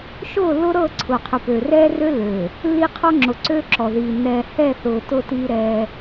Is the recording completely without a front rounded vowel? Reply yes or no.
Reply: no